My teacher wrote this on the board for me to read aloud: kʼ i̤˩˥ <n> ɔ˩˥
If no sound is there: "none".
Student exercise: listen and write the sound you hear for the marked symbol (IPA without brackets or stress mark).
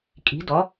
d